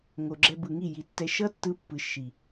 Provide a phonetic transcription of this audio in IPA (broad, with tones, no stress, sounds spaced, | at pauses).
ŋ o˨ ɡ͡ǁ ɛ˧ b ɯ˨ ŋ i˦˨ j i˨ tː ɛ˧ ʃ ʌ˦ tː ɯ˧ pː ɯ˨ ʃ i˨